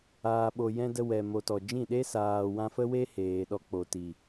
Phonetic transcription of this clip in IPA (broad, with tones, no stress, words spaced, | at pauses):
aː˨ ɓo˨jɛ̃˧ də˧wɛ˨ mo˨tɔ˨d͡ʒĩ˦˨ɗe˦ saː˨wã˧fə˦we˦ heː˨ ɗɔ˧k͡po˨ti˨